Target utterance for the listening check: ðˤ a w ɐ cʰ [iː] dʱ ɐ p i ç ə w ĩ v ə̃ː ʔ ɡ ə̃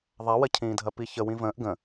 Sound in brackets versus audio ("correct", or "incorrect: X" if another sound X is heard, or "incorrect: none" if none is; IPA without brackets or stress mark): incorrect: ĩː